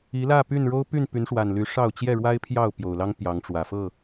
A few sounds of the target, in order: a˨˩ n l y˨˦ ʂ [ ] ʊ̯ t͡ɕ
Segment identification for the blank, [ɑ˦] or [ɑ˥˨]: ɑ˥˨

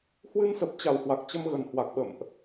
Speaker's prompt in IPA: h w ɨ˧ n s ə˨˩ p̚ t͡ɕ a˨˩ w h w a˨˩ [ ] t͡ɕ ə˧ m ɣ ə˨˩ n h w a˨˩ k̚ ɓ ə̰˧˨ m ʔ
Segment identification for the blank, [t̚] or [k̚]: k̚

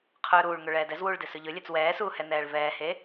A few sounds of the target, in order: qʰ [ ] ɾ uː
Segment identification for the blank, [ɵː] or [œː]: ɵː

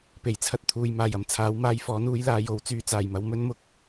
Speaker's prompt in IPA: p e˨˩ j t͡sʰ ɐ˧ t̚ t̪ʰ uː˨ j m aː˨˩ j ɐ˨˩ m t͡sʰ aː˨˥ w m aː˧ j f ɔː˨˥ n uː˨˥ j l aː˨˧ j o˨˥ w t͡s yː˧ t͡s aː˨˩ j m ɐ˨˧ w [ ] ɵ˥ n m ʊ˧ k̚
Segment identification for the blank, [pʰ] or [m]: m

